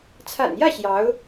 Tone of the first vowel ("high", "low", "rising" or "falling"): low